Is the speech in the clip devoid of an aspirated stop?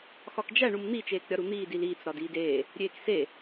yes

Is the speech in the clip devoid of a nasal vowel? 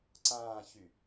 no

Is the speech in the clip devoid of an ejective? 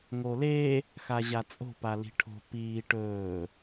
no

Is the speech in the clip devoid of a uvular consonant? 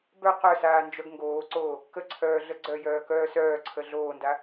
no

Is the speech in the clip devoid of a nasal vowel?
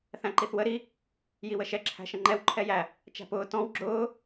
no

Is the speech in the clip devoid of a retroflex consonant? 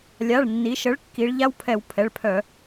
no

